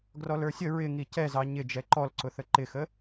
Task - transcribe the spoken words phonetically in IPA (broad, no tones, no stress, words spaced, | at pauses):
ɡrɔlə˞sʲə ɹɪŋi cɛzɑ ɲɪ d͡ʒɛǃɔlǀʊθə ǃɪxə